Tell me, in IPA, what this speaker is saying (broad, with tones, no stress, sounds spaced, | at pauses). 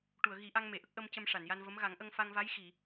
ʈ u˨˩˨ ə̯ ɣ i˨˩˦ ʔ a˧ ŋ m e˨˩˨ ʔ ə˦˥ k̚ ʔ ə˧ m c ə˧ m ʂ a˨˩˨ n j a˧ n v ə˧˥ m ɣ a˨˩˦ ŋ ʔ ə˧ ŋ f a˧ ŋ v a˧˥ j x i˨˩˨